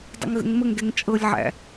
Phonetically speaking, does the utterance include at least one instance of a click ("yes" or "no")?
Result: no